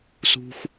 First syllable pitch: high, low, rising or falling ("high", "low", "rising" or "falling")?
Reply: high